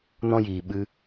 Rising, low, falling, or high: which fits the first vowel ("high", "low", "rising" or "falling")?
high